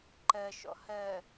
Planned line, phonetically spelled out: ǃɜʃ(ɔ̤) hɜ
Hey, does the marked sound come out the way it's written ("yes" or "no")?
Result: no